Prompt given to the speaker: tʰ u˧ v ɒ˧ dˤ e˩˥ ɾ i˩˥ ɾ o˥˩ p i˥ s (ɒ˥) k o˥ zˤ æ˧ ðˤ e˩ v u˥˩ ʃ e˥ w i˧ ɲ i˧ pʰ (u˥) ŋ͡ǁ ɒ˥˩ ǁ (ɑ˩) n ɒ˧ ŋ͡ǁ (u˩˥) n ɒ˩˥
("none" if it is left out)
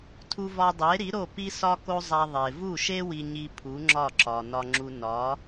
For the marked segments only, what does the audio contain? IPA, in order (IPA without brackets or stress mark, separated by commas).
ɒ˥, u˩˥, ɒ˩, u˧